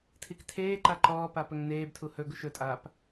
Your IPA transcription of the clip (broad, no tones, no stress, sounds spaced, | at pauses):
tʰ i k tʰ eː ǃ a ǃ ɔː p a p ɵ ŋ n eː b tʰ u h ɵ ɡ u ʃ ɵ tʼ aː p